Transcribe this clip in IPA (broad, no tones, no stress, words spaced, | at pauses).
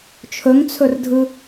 t͡ʃʰɵŋt͡sʰɵrdʱɯ